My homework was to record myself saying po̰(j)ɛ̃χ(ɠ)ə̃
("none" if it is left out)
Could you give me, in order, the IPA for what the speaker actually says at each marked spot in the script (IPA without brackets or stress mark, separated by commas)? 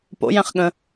j, ɠ